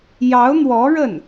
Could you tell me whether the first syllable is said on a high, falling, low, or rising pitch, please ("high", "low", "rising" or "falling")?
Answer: rising